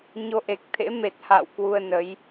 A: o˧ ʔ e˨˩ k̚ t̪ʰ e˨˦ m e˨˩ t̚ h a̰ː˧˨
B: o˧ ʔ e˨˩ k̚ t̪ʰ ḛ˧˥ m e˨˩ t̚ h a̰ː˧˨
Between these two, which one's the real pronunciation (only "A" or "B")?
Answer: B